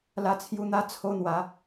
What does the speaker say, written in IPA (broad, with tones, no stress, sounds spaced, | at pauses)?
l a˧ t͡sʰ j u˧ n̪ a˦ t͡sʰ o˦ n̪ w a˨˦